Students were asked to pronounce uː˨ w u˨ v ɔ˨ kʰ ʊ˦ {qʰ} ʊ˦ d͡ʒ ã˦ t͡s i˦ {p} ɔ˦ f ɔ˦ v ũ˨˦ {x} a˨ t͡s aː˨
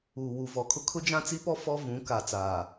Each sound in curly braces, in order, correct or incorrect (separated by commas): incorrect, correct, incorrect